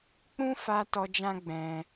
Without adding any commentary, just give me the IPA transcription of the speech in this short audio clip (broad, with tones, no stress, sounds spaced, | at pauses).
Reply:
k͡p ũ˦ f a˧ t ɔ˧ d͡ʒ ã˦ ɡ͡b ɛ̃˧